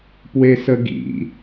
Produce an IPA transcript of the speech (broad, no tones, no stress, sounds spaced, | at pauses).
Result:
p w e s ə ɡ ḭ